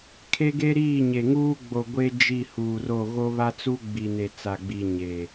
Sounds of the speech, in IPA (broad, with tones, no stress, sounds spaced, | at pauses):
kʰ e˦ ɡ e˦ ɾ iː˦˨ ɲ e˨ ŋ uː˦ ɡ͡b o˨ ɡʷ e˦ d͡ʒ i˦˨ h uː˨ r o˦˨ ɣ o˦ β a˦ t͡s u˦ ɡ͡b i˨ n e˨ t͡s a˨ ɡ͡b i˨ ɲ e˨